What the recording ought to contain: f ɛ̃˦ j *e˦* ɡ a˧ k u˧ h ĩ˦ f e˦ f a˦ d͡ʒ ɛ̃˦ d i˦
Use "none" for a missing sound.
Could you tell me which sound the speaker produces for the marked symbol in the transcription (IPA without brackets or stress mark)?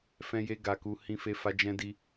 e˦